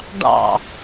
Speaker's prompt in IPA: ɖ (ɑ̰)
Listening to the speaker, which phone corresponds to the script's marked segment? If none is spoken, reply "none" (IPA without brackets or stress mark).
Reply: ɑ̰